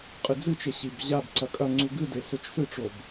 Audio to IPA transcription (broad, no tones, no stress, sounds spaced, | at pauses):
qʼ ɨ d͡z ɨ t͡ʃ e ɕ i b ʑ a b ǀ ɐ kʼ ɐ ŋ͡ǀ u ɡ ɨ d e s ɵ t͡ʃ s ɨ ʈ͡ʂ o b